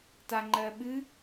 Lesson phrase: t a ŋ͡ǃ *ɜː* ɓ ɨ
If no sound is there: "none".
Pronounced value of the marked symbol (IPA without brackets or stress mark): ɜː